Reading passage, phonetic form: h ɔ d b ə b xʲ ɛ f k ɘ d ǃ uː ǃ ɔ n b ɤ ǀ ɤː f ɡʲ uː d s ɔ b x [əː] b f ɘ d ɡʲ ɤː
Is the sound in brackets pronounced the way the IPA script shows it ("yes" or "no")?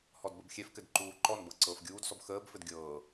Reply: yes